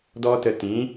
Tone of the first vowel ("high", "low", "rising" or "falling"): high